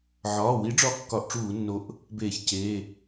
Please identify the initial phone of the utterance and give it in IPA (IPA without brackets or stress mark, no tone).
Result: ʕ